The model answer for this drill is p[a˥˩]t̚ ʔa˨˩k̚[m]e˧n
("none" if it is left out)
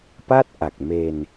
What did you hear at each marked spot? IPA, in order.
a˥˩, m

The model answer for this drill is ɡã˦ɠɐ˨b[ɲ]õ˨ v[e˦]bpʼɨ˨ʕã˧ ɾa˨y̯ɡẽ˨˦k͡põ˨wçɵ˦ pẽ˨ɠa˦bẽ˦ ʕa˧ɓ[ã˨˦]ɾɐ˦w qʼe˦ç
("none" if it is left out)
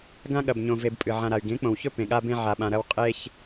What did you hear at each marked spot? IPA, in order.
ɲ, e˧, ã˧

